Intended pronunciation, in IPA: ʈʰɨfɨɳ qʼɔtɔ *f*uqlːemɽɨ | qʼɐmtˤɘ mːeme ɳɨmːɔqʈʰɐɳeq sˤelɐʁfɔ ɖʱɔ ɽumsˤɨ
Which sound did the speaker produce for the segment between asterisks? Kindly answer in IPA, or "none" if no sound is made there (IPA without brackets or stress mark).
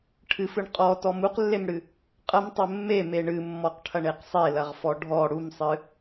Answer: m